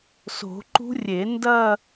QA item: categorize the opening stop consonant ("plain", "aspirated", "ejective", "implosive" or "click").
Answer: click